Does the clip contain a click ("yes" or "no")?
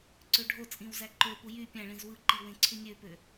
yes